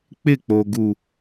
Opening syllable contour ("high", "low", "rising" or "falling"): falling